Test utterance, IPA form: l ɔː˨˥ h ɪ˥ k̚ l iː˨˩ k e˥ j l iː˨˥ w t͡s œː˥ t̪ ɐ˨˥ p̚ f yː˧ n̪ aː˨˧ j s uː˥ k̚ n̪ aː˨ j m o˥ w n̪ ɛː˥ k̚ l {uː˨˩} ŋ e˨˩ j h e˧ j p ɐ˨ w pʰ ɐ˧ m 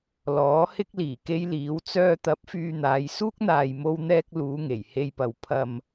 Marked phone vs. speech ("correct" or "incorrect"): incorrect